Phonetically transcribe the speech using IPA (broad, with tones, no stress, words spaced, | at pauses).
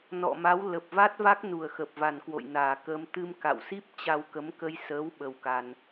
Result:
nɔ̰˧˨ma˨˦w lə˨˩p̚va˦˥t̚va˦˥k̚ nu˨˩ə̯xə˨˩p̚va˨˩nkwo̰˧˨j naː˨˩kəː˧m t̪ɨ˧mka̰˧˨wsi˦˥p̚ t͡ɕa˧w kə˨˦mkə˧j səː˨˦w ɓə˧wka˧n